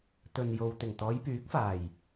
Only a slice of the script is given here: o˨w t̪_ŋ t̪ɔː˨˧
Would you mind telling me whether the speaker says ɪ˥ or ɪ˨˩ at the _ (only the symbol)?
ɪ˨˩